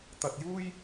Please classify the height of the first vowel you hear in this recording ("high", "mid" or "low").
low